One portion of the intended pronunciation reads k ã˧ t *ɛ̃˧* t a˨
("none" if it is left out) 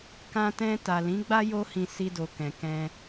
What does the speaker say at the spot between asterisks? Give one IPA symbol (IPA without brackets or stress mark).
ɛ̃˧